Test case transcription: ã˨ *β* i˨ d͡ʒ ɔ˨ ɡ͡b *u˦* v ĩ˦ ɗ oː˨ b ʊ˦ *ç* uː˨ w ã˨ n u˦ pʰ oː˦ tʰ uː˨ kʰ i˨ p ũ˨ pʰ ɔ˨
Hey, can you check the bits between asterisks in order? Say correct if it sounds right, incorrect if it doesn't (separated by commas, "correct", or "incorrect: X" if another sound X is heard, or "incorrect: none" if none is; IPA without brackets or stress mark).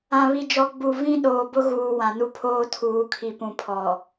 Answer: correct, incorrect: u˨, incorrect: ɣ